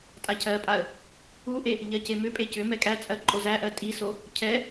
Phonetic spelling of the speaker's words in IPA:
tʼ a cʰ ɜ pʼ a ə̯ | u ʔ e | ʎ ɜ c e m ʏ pʼ e c ʏ m ɛ kʼ æ t͡sʼ ɜ ǃʼ o z æ ʔ ɜ tʼ i s o | cʰ ɛ

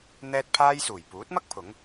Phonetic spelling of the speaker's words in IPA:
n̪ ɛː˥ t̚ pʰ aː˥ j s uː˨˩ j p uː˨˥ t̚ m ɐ˥ k̚ pʰ ʊ˨˥ ŋ

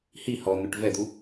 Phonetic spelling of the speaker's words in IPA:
h i h ɔ n̪ ø ʈ v ɛ d̪ u

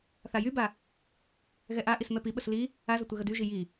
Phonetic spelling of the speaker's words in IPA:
θ a j y b a | ɣ ɛ ʔ a ʔ i s m ɛ p i ɓ ə s l i | a z ə tʷ ɛ ɣ ə d y ʒ i j i

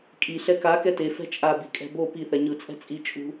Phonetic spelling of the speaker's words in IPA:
kʼ i ɬ ɛ k a k ɛ t e f ɛ̤ t͡ʃʼ a b i kʼ ɛ̤ b o p i θ ɛ ɲ ɯ t͡sʼ ɛ̤ t͡sʼ i t͡ʃʼ ṳ

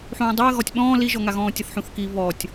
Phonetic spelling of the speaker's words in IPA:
ħ ũː dˤ o ə̯ ɣ ɔ tʲ ɓ ɔ̃ː l i ʒ ɔ ŋ a ɣ ɔ̃ː tʲ ɤ θ ħ ũ θ k i β ɔ tʲ

